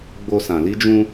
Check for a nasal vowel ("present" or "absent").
present